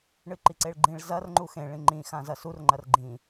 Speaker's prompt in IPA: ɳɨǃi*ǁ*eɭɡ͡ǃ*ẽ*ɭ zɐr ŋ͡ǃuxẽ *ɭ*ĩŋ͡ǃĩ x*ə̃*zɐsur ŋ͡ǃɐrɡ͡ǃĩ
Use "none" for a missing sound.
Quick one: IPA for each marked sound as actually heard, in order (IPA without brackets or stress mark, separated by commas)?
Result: ǀ, ĩ, ɭ, ã